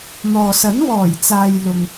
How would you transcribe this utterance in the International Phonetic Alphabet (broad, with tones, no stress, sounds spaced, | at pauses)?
n̪ ɔː˨ s ɐ˨˥ n w ɔː˨˩ j t͡s aː˨ j l ʊ˨ ŋ